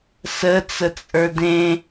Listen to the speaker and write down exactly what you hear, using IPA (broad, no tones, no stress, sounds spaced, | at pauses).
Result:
s ə t͡s ə t͡sʼ ə˞ d ẽ